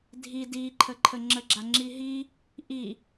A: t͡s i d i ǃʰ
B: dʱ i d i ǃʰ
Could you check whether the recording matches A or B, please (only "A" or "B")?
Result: B